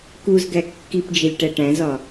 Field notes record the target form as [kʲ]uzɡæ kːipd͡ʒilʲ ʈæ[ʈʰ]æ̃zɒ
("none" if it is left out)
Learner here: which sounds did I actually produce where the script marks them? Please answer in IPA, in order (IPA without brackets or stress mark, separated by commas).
k, ʈ